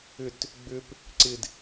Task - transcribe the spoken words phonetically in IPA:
ʏ t | ɡ͡b ʏ p | ǀ ɪ d

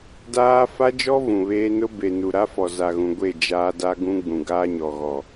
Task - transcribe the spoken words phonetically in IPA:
d aː˦ f a˦ d͡ʒ ɔ˦ v ũ˨ β eː˦ n ʊ˦ b e˨ n u˨ ɾ a˦ f ɔ˨ z a˨ ɣ ũ˨ ɡʷ e˦˨ d͡ʒ aː˦ d a˦ ɡ ũ˦ ɡ͡b ũ˨ ɡ aː˦ ɲ ɔ˨ ɣ ɔ˨

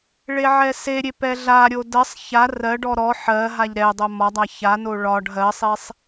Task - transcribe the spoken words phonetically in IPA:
ɭ e ʕ ɛ s e ɾʲ e p ɛ ɮ a ɾʲ o d ɜ sˤ ç a r ɜ ɖ ɔ ɾ ɔ ħ ɜ ɦ a ʎ ɾ ɛ dˤ o m ɒ dˤ a ç a n o ɭ ɒ ɖ ɦ ɜ sˤ e sˤ

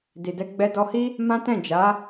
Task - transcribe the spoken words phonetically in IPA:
d i˨ d ɛ˧ ɡ͡b ɛ˧ d ɔ˧ h i˦ | m ã˦ t ɛ̃˦˨ d͡ʒ a˨˦

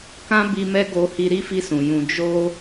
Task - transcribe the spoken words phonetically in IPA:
k ã˦ b i˧ m ɛ˦ ɡ o˧ h i˧ ɾ i˦ f i˧ s ũ˨ j ũ˧ d͡ʒ o˦

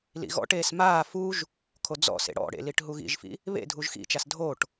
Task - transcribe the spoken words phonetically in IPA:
l ḭ ɣ ɔ̰ ʈ eː s m aː f u ʒ | kʰ o d͡z ɔ̰ s ḛ ɽ ɔ̰ ɽ ḛ l i ʈ ɦ u ɣ ḭ ʒ f ḭ | β ḛ dʱ u ʒ x ḭ t͡ʃ a s dʱ o ʈ

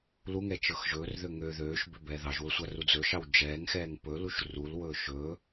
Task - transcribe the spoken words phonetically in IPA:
l u ŋ ɛ t͡ʃ ɤ x ʒ ɵː r ð ø ŋ ø ð øː ʃ b ø b ɛː ð ɑ ʒ w ɵ sʷ a r u d͡z ɵ ʃ ɑ w d͡ʒ ɛː ŋ x ɛː ŋ p ɵ l u ʃ r u l w ɵː ʃ ɵː

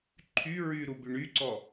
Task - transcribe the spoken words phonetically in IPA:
ǃʰ y ɹ y ɾ u b y ɳ y ǀ ɔ

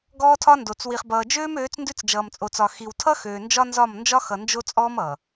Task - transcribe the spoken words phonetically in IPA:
ɡ ɔː˦ tʰ ɒ˦ n d o˨ t͡s w i˨ χ b ʌː˨ d͡ʒ øː˦ m øː˨˦ t͡s n d ʉ˦ t͡s d͡ʒ ʌː˨ m t͡sʼ o˨ t͡s ɒ˨ x i˨ w tʰ ʌ˦ x øː˨ n d͡ʒ ɒ˦ n z ɒ˦˨ m n d͡ʒ ɒ˦ x ʌ˨ n d͡ʒ o˦ t͡sʼ ɔː˦ m ʌ˨

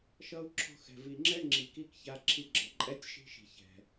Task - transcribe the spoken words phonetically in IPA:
ʃ ʌ˧ u̯ ǁʰ ɔ̤˧ x ɛ̤˨ v i˨ ŋ͡ǁ ɛ˦ ŋ͡ǁ i˨ k i˦ k ç a˧ ǁʰ i˧ ɡ͡ǁ ʌ˨ ǃʼ ɛ˦ tʲ ʃ i̤˦ ʃ i̤˨ ç ɛ̤˨

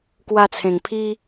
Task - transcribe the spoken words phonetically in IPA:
k w a˧ t͡sʰ ẽ˨˩ ŋ pʰ i˦

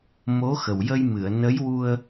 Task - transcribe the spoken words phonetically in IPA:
m o˧˥ x ə˨˩ w j ə˧ j m ɨ˨˩˨ ə̯ n ə˧˥ j w u˧ ə̯

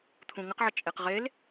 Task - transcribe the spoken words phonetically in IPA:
t̪ʰ ũ ŋ ə q ʕ ə t͡ʃʼ e q ʁ e l

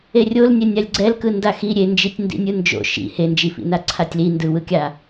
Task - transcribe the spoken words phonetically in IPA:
e rʲ o l nʲ ɛ nʲ a lʲ ɡ͡ǀ ɛ l k ɯ n d a x i ɾʲ e n d͡ʒ i tʲ n d ḭ nʲ ɯ n d͡ʒ o̰ ʃ ḭ h e n d͡ʒ i f ḭ n a ǀʰ a tʲ l i n d ɯ w ɯ kʲ a

